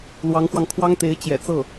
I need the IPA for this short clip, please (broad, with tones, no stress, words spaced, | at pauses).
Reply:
lwɑ˧˥ŋxwɑ˧ŋ kʰwɑ˥ŋt̪e˧˥ɪ̯ t͡ɕjɛ̰˨˩ t͡sɤ˥˩